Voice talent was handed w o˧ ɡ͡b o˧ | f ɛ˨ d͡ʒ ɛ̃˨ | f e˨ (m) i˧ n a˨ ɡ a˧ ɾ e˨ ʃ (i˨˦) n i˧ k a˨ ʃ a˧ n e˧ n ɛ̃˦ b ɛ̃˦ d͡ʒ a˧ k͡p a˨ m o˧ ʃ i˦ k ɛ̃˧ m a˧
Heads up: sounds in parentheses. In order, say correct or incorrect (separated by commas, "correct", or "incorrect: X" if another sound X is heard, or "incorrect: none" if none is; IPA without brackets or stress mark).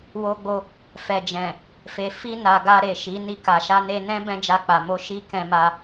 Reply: incorrect: f, correct